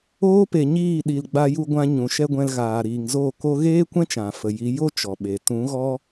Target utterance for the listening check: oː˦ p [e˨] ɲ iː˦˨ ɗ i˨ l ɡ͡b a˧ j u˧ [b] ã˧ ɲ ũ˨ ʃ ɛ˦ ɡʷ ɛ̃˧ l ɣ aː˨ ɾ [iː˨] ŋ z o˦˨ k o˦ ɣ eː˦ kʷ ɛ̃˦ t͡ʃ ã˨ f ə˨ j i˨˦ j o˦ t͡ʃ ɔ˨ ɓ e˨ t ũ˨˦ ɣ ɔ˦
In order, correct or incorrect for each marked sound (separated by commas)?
correct, incorrect, correct